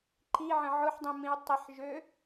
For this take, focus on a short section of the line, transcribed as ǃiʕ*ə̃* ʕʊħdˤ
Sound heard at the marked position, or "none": ə̃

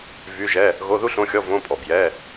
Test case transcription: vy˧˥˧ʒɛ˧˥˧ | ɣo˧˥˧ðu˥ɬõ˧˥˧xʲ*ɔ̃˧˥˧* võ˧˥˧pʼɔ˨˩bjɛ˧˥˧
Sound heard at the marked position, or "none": ɔ˧˥˧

